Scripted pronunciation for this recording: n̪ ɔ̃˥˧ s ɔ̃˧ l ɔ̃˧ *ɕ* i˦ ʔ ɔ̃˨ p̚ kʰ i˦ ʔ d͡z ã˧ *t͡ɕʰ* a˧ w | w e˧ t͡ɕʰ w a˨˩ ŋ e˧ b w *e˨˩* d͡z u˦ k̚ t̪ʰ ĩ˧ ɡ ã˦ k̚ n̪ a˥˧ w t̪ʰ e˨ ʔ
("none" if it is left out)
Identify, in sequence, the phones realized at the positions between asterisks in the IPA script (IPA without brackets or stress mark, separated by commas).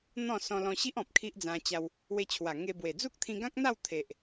ɕ, t͡ɕ, e˨˩